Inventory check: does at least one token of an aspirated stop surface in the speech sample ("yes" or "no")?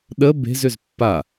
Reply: no